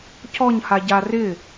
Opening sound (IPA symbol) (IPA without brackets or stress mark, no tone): c